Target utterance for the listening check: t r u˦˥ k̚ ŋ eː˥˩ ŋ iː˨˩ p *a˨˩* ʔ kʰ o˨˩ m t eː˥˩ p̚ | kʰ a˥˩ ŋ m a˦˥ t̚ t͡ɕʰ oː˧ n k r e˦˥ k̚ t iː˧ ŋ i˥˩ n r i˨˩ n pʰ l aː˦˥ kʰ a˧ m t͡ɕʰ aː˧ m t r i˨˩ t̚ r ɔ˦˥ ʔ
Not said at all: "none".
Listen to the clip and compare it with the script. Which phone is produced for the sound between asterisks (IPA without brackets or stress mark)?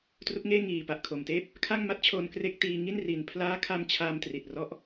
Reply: a˨˩